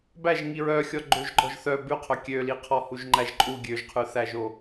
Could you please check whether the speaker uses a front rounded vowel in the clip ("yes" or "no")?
yes